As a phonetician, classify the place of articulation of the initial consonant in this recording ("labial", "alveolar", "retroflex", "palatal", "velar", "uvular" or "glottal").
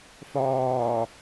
labial